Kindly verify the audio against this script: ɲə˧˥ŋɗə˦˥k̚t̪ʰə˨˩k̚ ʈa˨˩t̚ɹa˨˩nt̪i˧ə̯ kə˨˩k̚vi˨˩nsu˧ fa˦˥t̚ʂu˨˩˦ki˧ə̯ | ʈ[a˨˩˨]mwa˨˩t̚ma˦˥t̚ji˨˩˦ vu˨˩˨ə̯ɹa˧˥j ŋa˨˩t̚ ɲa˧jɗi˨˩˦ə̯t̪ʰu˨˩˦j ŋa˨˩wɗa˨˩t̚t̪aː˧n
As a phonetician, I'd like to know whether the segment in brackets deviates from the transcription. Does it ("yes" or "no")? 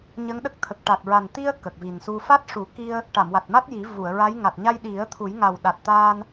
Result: no